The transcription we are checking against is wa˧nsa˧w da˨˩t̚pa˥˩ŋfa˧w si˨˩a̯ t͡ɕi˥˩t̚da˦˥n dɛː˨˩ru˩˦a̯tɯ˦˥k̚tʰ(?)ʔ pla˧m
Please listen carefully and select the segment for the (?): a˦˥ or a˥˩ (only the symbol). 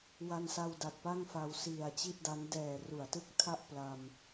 a˥˩